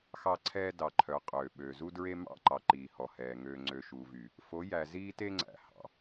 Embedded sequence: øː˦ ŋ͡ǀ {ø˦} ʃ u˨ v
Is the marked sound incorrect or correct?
correct